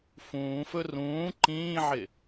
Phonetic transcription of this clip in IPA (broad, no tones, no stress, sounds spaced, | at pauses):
f ũː f ɵ r ũː ǃ ĩː ʕ ɪ